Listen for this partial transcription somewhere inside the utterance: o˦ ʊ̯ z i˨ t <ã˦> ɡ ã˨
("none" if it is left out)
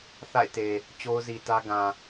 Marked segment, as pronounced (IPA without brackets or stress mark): ä˦